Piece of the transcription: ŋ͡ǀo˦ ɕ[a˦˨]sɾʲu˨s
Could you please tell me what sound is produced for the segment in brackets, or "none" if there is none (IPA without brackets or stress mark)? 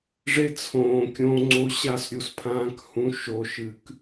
a˦˨